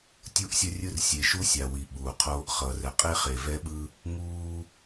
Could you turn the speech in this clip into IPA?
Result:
tʲ u˦ ʔ sʲ ʌ˦ rʲ ɯ˦ r sʲ e˨ ʃ u˦ sʲ a˨ w i˨ ɓ uː˨ qʰ oː˦ ʔ χ ʌː˨ r ɛ˨ qʼ e˦ χ e˨ v ɛ˦ ɓ ɯ˦ | ŋ uː˦

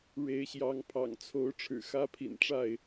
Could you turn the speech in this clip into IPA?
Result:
ɻ e˨˦ ɪ̯ ɕ j ɑ˨˦ ŋ pʰ ɑ̰˨˩ ŋ t͡sʰ o˨˦ ʊ̯ ʈ͡ʂʰ ɻ̩˨˩ x ä˦ pʰ ḭ˨˩ n ʈ͡ʂ a˥˨ ɪ̯

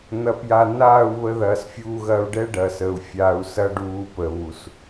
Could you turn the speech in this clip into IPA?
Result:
n̪ ɐ˧ p j a˧ n aː˦˨ u̯ β ə˧ ð ɐː˨ s fʲ uː˧ ɣ ɐ˧ u̯ ɖ ɛ˦ ɖ ɐ˨ s əː˨ u̯ fʲ aː˧ u̯ s ɐ˦ ɖ uː˧ p əː˨ β u˨ s

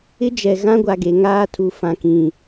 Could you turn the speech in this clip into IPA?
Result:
ɪ˦ d͡ʒ ɛ˨ ɣ ã˦ ɡʷ a˨ ɡ e˨ ŋ aː˦ tʰ u˨ f ã˨ k ĩ˨

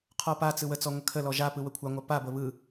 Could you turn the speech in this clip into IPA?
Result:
qʰ ɔ p a t͡s ɯ w ə t͡s ɔ ŋʷ ə kʰ ə l ɔ ʒ a p ɯ w ə kʷʰ a ŋʷ a p a b ə β ɯ

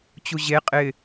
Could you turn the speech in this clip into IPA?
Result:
t͡ɕ u ʑ e qʼ ɪː

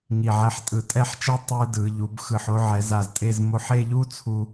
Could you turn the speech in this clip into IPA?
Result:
ŋ i˧˩ ʕ ɛ˥˧ ħ tʼ ɯ˧˩ tʼ ɛ˥˧ ħ t͡ʃ a˥ tˤ ɯ˥ d ɯ˩˧ ʎ u˩˧ b x ɯ˧˩ ħ o˥ ʕ ɛ˩˧ z a˧˩ z tʼ e˥˧ z m o˧ ħ e˥˧ ʎ u˥ t͡sʰ u˧

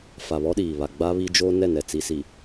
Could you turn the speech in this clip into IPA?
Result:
f a˨ β ɔ˦ ɗ iː˨ β a˨ ɡ͡b a˦ β i˦ d͡ʒ o˦ n ɛ˦˨ n ɛ˨ t͡s i˨ s i˨

